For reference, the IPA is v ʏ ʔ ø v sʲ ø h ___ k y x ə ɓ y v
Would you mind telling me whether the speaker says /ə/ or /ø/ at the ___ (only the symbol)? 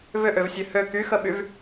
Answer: ø